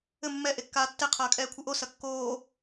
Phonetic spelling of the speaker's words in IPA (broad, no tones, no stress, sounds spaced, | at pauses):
ɘ mː ɛ ʔ e kː aː tː e qʰ ɐː kʼ ɛː kʷʰ ɨ ʔ o s ɐ kː oː